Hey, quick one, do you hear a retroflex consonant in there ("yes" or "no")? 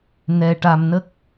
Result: yes